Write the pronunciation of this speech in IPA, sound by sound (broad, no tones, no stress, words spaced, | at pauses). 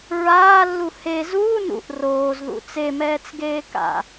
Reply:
ɹaːlːu he zuː nṵʔ roːzðṵ t͡semɛːt͡sɡeː ka̰